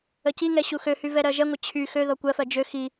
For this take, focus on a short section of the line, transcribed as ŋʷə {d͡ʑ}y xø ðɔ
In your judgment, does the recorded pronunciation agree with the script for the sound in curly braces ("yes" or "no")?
no